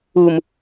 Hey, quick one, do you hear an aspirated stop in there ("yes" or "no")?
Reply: no